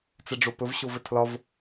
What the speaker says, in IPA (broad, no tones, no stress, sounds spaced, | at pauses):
t͡s ɛ ɖ͡ʐ o p ɵ v ɕ o v ɘ tʰ l ɒ v